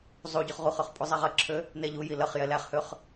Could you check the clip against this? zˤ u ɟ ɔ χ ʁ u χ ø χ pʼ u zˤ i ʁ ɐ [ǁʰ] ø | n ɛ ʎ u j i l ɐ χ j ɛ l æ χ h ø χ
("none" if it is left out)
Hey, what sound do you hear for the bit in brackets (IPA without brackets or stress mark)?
ǁʰ